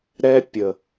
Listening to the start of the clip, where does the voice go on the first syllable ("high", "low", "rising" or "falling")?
high